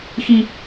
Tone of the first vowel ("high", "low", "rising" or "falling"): high